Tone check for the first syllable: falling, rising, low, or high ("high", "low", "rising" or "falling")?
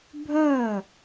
falling